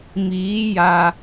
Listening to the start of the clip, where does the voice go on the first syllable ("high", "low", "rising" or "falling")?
rising